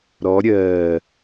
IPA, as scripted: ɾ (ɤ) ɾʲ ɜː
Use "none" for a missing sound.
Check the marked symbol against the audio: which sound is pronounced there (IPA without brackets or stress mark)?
ɔ